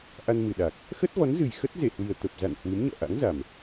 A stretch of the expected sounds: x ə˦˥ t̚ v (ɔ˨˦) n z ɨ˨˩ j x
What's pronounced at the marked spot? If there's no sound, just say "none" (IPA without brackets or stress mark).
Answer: ɔ˨˦